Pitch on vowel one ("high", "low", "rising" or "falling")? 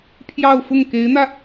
falling